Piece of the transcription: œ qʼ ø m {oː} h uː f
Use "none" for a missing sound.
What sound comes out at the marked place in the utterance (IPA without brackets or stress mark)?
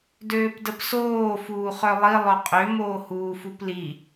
oː